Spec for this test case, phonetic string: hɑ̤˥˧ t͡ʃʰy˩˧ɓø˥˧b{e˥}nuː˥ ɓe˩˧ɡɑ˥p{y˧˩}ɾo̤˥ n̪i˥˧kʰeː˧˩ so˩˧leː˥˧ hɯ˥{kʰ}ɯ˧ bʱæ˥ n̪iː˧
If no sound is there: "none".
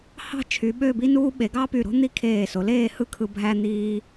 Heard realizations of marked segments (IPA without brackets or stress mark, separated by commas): i˥, y˧˩, kʰ